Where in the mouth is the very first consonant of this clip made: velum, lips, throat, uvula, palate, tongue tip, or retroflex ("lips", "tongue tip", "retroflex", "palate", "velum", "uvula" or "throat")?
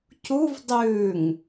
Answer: palate